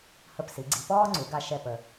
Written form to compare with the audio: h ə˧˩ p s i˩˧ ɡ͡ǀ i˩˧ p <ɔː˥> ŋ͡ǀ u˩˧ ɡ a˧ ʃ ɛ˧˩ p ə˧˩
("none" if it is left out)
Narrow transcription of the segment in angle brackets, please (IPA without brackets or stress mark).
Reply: ɔː˥